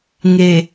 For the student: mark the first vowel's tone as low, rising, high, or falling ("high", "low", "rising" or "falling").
low